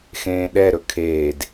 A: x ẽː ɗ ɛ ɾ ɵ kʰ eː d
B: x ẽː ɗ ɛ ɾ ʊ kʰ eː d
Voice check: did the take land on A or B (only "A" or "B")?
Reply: A